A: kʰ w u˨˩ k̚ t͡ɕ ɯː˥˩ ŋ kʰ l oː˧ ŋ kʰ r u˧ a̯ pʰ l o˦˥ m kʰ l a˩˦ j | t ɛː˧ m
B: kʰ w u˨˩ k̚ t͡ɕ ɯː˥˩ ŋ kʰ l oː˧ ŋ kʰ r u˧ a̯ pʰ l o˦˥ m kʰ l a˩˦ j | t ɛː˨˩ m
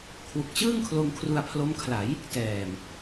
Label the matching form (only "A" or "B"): B